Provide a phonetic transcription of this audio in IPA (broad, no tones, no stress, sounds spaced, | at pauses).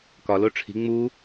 k ɒ l o ʈ͡ʂʰ i̤ ŋ͡m u